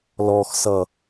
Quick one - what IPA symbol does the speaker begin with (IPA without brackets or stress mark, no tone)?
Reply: l